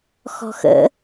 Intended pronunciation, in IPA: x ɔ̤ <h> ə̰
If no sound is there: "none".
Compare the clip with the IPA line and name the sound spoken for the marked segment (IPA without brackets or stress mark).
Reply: x